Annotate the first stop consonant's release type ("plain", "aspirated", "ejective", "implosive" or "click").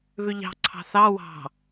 click